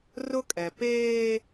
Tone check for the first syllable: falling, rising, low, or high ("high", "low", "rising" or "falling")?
high